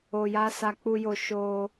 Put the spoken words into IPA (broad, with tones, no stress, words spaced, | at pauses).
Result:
o˧ja˦sa˧ k͡pu˧jo˧ ʃo˧